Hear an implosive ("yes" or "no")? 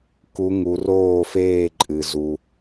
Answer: no